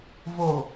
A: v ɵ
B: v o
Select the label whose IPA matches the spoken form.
B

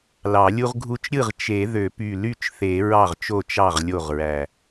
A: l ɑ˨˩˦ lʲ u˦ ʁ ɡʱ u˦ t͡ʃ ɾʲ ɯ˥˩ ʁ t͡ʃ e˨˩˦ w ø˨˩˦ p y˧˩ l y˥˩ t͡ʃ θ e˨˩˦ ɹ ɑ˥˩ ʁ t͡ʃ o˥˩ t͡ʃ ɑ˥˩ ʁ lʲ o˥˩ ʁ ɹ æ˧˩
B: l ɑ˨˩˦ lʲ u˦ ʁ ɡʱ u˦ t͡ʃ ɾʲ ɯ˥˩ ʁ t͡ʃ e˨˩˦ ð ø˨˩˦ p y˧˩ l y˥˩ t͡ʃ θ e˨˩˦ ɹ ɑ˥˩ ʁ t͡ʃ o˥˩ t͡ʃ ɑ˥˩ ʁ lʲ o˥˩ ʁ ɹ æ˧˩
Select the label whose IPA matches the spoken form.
B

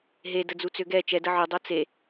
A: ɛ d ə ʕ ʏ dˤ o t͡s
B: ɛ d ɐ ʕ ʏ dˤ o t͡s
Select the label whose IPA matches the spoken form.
A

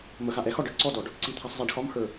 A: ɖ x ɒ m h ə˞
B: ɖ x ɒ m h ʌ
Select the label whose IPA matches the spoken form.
A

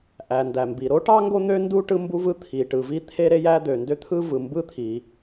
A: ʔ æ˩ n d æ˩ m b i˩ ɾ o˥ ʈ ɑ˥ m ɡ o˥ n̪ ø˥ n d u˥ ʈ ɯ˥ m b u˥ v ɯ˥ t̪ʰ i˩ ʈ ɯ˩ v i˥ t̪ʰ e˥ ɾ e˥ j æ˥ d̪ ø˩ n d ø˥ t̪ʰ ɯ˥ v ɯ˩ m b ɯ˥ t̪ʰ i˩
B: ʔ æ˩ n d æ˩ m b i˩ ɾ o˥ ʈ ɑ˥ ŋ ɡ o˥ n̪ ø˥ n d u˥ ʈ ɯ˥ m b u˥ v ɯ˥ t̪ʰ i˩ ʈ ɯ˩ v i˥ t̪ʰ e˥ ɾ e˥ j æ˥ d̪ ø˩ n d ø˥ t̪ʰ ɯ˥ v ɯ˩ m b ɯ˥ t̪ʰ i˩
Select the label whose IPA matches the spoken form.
B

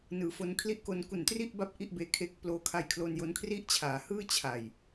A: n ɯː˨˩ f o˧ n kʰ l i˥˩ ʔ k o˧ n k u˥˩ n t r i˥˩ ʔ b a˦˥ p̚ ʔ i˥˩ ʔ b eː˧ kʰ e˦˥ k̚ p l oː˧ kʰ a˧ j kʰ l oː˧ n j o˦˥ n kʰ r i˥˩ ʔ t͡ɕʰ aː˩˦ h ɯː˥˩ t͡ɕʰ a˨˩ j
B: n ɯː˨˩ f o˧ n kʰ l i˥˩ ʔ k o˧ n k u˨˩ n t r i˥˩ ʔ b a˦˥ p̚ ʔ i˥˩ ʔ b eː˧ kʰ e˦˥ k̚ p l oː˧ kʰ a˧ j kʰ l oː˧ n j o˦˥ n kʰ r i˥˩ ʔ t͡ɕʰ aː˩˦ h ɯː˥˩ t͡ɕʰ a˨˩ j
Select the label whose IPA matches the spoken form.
B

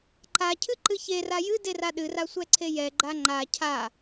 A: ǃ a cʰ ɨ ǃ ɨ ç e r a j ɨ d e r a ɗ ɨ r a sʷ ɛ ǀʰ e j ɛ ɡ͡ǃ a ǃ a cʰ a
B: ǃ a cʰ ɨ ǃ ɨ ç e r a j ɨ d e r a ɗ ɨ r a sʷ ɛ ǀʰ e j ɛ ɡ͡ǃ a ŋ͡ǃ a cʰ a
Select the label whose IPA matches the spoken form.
B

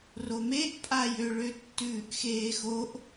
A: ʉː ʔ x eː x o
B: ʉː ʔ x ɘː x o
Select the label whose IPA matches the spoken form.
A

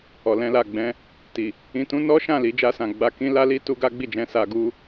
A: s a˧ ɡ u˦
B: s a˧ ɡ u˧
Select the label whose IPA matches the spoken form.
A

